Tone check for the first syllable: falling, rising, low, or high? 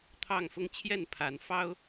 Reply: falling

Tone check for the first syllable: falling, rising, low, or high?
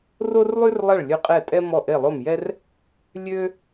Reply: high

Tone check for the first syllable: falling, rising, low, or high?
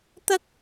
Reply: high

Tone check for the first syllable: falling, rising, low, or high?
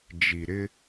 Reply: low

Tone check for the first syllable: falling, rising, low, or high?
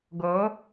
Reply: rising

